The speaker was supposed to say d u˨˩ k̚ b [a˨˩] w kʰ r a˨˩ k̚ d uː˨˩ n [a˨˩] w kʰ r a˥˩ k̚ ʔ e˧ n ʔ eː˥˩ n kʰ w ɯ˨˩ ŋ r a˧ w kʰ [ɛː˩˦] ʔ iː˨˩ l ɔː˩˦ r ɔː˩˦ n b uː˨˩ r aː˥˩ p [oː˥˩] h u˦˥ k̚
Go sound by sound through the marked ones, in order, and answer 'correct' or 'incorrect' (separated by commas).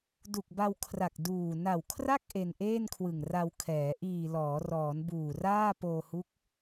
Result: incorrect, correct, correct, incorrect